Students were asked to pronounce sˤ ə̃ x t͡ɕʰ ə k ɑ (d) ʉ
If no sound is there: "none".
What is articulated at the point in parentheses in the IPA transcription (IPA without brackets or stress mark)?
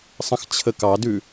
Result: d